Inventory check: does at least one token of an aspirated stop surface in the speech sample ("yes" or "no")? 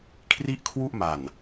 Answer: yes